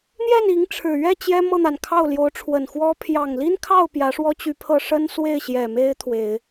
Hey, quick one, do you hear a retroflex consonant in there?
yes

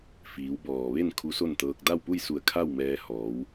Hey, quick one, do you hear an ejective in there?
no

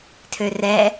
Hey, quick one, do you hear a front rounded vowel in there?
yes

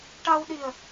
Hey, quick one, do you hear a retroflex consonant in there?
yes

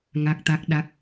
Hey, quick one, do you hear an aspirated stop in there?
no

